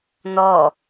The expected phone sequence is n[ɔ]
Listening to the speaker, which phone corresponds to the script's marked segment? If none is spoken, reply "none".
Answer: ɔ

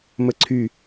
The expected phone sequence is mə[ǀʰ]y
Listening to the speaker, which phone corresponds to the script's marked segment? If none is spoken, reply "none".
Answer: ǀʰ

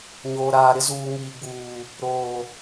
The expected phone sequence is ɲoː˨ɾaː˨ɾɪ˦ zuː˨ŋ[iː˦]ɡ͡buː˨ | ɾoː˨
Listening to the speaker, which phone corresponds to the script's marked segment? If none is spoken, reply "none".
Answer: iː˨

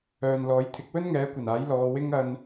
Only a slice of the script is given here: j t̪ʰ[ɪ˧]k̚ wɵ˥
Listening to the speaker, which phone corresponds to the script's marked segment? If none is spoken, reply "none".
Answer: ɪ˨˥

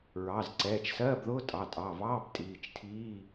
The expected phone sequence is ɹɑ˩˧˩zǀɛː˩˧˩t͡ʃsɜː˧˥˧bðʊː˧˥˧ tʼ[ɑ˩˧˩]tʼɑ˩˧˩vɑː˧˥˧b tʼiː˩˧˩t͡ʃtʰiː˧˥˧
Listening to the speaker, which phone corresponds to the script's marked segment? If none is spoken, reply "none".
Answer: ɑ˩˧˩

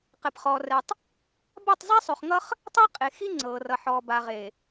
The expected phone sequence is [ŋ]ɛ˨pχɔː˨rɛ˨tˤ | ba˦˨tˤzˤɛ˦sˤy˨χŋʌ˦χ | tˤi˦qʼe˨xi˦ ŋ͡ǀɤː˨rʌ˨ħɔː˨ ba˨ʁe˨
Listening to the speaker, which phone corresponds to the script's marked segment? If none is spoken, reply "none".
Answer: q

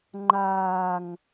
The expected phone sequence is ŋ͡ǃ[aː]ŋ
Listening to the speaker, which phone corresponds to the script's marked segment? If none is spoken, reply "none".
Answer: aː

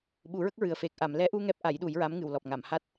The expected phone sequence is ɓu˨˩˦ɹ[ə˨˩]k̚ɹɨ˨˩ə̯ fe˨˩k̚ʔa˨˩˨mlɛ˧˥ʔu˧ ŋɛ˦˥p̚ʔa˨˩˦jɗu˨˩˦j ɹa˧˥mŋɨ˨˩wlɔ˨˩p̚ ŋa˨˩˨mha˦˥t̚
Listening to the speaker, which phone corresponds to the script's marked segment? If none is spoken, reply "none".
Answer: ə˦˥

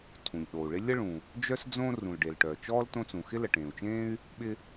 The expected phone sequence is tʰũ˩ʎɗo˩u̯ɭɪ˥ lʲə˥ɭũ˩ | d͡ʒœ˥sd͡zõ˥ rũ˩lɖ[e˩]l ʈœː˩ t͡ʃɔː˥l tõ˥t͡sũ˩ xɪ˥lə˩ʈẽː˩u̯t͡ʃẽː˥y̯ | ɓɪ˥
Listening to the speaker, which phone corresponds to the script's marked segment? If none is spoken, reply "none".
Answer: e˩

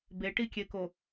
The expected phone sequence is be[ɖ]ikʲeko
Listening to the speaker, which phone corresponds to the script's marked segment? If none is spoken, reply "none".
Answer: ʈ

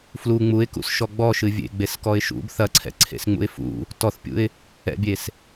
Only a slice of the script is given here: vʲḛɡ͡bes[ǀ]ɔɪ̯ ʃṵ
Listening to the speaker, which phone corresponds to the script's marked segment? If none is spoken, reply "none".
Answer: k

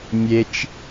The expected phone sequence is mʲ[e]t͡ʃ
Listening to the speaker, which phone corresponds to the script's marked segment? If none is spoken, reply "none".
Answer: e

